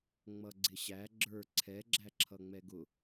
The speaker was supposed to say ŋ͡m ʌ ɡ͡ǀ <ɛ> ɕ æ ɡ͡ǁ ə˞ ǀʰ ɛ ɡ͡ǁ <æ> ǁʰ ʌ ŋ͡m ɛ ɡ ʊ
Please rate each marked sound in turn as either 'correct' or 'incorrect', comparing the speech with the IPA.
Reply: incorrect: ɪ, correct

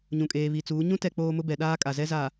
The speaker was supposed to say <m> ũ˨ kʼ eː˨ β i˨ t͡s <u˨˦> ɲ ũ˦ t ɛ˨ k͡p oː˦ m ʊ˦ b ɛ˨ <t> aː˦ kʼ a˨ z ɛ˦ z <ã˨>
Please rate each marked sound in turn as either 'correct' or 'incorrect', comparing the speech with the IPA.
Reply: incorrect: ɲ, incorrect: uː˨˦, incorrect: ɗ, incorrect: a˨

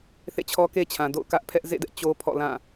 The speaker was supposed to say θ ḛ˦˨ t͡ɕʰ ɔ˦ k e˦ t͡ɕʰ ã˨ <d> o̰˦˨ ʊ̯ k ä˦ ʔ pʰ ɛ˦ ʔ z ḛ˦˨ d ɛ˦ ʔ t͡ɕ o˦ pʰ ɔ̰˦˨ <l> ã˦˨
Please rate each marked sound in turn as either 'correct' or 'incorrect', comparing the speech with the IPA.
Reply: correct, correct

